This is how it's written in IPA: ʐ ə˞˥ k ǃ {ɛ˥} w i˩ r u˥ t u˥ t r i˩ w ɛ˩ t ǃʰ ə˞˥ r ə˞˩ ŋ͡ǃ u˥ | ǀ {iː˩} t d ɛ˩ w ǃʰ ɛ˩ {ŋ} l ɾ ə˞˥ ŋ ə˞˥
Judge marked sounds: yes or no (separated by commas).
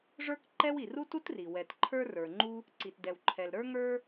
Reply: yes, no, no